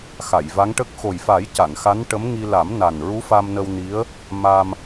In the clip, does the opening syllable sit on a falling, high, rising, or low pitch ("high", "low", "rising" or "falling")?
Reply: low